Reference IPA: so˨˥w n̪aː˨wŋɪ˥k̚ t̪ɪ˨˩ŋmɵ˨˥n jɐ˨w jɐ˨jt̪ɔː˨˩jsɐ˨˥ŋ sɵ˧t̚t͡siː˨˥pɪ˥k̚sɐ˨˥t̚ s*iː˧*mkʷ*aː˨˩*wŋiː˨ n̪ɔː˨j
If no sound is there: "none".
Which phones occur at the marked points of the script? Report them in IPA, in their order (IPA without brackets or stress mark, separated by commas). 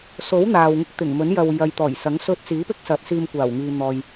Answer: iː˧, aː˨˩